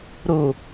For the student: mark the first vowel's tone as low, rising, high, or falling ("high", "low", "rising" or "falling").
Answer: low